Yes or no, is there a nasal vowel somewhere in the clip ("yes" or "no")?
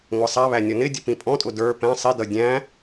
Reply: yes